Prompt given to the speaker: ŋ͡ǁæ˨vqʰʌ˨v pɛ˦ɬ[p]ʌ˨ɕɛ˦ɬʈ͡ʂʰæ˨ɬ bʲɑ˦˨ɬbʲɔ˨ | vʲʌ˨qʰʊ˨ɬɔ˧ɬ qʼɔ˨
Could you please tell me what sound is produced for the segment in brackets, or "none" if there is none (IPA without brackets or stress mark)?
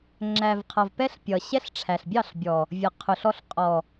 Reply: pʲ